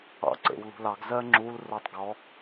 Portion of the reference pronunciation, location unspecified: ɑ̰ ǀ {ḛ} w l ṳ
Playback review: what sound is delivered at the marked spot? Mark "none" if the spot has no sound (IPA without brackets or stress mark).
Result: ḛ